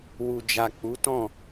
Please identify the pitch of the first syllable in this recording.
low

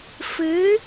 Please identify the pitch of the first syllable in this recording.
rising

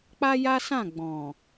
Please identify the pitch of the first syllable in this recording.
high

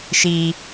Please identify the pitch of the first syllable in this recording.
high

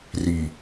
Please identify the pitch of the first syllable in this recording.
low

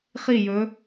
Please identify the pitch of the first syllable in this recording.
falling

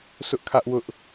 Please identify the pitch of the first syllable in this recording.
high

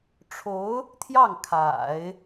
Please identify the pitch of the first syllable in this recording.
rising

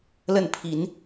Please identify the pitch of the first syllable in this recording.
falling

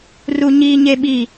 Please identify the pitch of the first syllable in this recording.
low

